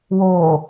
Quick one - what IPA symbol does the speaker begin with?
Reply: w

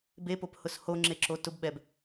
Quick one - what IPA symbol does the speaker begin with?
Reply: b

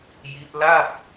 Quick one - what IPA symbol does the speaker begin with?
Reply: j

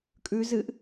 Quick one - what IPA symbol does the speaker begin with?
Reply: kʼ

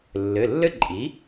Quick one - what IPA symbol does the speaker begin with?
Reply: lː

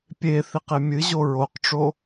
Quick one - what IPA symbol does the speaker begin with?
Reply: pʲ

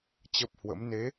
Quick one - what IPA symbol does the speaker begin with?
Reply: t͡ɕ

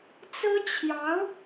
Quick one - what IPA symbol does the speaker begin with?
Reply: t͡s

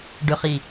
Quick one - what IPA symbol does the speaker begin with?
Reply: ɖ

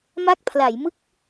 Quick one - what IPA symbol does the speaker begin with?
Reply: m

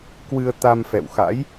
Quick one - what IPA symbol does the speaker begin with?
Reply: k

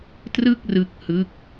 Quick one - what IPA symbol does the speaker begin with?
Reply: t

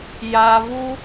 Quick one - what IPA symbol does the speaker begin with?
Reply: j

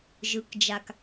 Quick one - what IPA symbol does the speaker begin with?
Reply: ʒ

